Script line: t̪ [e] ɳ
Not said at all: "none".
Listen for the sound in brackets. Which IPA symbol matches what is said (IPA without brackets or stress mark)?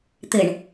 ɘ